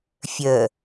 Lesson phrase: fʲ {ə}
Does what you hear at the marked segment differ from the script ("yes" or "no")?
no